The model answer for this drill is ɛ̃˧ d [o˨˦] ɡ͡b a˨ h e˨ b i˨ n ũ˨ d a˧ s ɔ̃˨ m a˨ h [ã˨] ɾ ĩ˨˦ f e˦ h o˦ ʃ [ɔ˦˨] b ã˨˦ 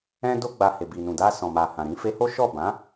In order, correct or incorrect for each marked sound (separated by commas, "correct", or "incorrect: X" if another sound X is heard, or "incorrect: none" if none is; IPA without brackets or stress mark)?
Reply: incorrect: o˧, correct, correct